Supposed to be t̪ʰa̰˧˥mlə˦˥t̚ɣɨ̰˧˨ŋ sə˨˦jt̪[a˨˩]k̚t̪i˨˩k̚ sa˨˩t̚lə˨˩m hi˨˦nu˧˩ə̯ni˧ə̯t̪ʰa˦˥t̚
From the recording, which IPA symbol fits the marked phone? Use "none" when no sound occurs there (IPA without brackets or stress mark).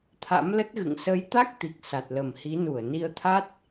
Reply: a˦˥